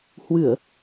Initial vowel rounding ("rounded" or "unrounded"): unrounded